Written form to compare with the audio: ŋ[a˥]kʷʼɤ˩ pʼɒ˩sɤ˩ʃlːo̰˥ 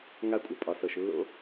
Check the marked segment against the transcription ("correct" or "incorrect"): correct